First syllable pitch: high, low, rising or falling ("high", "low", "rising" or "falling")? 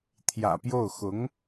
low